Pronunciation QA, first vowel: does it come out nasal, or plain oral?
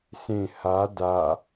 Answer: nasal